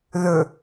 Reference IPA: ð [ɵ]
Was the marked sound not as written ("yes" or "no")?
no